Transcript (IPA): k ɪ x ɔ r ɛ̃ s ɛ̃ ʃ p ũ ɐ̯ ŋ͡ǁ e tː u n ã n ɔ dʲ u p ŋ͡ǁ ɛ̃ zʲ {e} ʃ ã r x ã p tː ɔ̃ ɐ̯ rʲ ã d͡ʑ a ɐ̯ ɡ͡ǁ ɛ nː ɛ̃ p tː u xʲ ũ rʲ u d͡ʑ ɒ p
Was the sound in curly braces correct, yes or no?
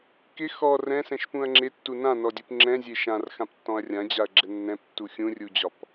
yes